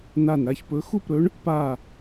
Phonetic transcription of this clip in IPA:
na˧˩n ɾa˥˨çpɵ˧˥ xu˥˨pɾɵ˧˥ɳ | pa˥˨

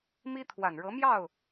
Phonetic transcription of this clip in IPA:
mi˥ t̪ʰwa˨˩nɻɤ˧˥mjɑ˥˩ʊ̯

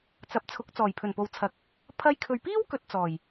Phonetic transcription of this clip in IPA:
t͡sɐ˨˥p̚t͡sʰʊ˨˥k̚ t͡sɔː˨˩jpʰɵ˨˩npo˨wt͡sʰɐ˨k̚ | pʰɐ˧jkʰɵ˨ɥ piː˥wkɵ˨t̚ t͡sɔː˨˩j

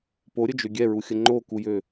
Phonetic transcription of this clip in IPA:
poɾʲəd͡ʒø ɡʲɛɹuxʲə ŋ͡ǃokujø

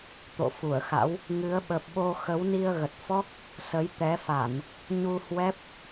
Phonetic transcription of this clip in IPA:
t̪o̰˧˨fu˧˩ə̯xa̰˧˥w | ŋɨ˨˦ə̯ɓə˨˩p̚ɓo˧ xə˨˦wni˧ə̯ɣə˨˩t̚fɔ˦˥k̚ | sə˨˦jt̪ɛ˨˦fa˧˩˨n | ɲu˧hwɛ˦˥p̚

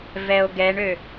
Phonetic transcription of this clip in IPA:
vɛo̯ɡɛɳø

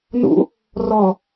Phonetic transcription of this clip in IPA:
nṵ | rɔ

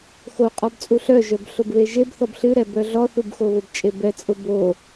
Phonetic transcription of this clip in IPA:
xoqʼɔbt͡sʼu ɬœʒœbɬʊbβe ʒebθɔb ɬɨɾɛbœ ɮɔθubxo βʊbt͡ʃʼe bɛt͡sʼʊ bo

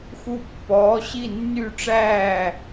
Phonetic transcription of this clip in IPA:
xu˥ pːɔː˧˥ɕi˥˧nːy˥˧ʈ͡ʂæː˥˧

